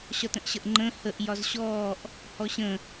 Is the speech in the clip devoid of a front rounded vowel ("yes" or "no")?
yes